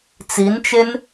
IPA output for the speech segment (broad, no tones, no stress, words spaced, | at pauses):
t͡sint͡ʃen